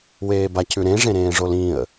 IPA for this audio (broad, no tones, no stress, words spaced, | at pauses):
weːbacʉ ɾẽʐẽɾẽːʐol ĩə̯